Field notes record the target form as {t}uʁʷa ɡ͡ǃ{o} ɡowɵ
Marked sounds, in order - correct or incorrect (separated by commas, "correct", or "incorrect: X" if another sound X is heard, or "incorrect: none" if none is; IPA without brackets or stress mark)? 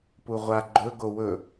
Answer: incorrect: p, incorrect: ɵ